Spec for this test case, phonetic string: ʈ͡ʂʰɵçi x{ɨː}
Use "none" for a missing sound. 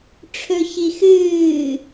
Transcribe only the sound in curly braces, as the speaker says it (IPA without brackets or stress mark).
ɨː